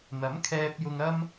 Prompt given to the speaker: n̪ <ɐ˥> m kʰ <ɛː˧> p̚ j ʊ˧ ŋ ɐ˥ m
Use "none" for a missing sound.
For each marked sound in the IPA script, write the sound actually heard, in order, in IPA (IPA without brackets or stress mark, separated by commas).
ɐ˨˥, ɛː˧